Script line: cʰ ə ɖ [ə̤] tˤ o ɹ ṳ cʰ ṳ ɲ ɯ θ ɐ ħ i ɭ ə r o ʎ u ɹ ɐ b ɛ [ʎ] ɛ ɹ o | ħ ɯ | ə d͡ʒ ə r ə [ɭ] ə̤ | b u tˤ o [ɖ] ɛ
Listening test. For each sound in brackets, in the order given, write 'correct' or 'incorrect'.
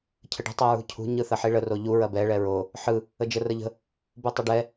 correct, incorrect, incorrect, correct

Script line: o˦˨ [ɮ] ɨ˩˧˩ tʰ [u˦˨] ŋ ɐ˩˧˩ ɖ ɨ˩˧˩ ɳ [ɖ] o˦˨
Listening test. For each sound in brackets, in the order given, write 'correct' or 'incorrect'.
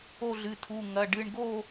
correct, incorrect, incorrect

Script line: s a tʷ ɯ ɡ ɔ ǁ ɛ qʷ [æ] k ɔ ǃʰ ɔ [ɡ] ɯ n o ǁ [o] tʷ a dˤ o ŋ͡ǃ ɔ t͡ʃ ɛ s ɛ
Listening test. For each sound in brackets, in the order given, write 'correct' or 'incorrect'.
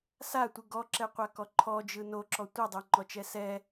incorrect, incorrect, incorrect

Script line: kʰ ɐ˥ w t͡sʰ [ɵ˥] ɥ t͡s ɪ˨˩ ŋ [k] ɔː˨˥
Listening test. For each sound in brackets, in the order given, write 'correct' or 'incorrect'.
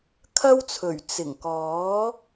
incorrect, correct

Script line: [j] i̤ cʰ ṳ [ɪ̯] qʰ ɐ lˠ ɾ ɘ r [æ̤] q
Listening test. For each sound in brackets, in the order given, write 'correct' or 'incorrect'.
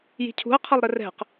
correct, incorrect, incorrect

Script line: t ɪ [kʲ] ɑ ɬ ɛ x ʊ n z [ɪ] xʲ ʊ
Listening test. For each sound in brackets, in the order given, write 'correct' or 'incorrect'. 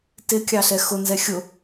correct, incorrect

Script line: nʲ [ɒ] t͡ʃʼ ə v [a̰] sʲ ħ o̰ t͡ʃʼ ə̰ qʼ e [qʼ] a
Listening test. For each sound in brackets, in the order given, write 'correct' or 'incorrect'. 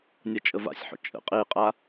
correct, correct, correct

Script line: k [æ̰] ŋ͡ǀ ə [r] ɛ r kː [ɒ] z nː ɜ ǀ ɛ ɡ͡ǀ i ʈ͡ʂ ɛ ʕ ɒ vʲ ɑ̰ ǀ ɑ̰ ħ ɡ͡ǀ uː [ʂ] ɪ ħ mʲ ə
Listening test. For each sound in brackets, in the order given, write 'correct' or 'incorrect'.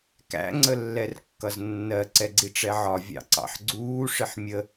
correct, incorrect, incorrect, correct

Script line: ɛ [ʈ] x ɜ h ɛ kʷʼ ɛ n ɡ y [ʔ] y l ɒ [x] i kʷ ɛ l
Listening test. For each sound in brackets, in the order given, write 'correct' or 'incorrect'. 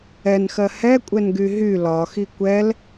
incorrect, incorrect, correct

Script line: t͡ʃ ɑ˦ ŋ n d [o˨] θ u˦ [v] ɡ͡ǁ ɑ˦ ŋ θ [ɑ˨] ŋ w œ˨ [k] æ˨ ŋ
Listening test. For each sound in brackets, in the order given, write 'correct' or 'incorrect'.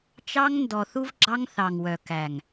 incorrect, correct, correct, correct

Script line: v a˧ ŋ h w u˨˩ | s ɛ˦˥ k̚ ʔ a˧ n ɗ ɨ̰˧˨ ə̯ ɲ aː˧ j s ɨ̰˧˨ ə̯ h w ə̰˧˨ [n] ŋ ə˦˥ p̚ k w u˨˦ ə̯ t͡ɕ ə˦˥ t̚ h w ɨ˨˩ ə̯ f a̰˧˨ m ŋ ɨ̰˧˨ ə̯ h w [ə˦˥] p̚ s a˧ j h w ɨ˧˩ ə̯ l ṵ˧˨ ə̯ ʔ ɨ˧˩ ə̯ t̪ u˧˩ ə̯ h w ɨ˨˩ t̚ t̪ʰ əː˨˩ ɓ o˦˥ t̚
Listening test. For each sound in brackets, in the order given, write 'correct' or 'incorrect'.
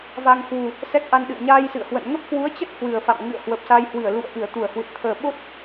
correct, incorrect

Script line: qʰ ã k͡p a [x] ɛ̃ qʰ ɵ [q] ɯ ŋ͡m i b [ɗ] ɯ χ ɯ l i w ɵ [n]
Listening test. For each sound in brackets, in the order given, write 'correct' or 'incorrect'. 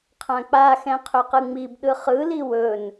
correct, correct, correct, correct

